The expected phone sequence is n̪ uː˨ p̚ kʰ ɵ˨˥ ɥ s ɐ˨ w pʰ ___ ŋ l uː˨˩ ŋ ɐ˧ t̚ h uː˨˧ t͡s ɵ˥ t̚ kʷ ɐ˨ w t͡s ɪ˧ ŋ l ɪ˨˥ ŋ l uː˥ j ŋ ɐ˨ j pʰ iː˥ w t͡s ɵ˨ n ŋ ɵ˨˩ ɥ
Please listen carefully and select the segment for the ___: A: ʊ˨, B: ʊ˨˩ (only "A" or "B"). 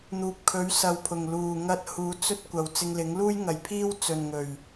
B